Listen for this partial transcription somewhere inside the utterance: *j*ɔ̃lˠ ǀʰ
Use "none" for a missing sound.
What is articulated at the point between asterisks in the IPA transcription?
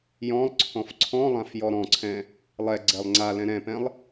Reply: j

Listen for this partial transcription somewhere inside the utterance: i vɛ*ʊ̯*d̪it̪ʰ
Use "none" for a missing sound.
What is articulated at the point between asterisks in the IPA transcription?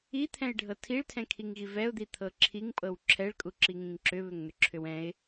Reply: ʊ̯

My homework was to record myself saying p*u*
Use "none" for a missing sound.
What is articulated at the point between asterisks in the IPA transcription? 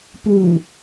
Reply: u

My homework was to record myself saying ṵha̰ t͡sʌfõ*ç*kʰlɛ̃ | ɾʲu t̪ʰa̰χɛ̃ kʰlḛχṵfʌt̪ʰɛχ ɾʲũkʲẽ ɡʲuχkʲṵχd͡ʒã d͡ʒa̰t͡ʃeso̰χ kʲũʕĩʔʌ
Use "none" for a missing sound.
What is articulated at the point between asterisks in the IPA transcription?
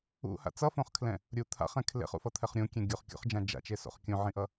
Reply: χ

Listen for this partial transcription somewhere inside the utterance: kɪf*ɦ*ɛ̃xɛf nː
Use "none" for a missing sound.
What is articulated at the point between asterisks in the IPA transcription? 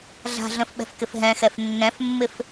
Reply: ɦ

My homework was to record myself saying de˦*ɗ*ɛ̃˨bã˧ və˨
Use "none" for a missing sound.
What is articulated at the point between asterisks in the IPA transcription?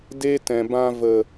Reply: t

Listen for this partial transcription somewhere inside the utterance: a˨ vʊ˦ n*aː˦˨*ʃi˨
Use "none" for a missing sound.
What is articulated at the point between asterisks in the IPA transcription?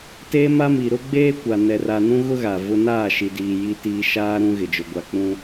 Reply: aː˦˨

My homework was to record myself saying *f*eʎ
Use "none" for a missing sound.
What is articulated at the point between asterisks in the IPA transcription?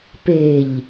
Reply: p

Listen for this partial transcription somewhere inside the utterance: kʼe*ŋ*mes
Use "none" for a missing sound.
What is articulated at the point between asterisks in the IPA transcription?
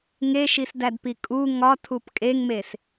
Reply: ŋ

